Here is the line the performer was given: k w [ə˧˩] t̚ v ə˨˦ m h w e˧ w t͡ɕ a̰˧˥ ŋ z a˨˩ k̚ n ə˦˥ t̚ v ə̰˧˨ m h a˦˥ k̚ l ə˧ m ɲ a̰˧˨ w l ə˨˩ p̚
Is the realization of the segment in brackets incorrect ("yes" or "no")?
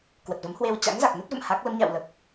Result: yes